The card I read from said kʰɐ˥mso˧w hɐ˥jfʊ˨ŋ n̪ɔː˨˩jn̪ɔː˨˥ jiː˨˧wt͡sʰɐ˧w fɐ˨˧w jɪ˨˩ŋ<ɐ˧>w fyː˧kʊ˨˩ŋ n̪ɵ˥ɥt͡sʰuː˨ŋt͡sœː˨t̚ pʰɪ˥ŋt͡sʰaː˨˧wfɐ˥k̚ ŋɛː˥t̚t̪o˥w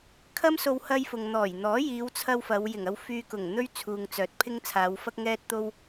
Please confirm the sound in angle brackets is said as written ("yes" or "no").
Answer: yes